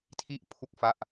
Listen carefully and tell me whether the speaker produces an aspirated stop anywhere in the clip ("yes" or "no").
yes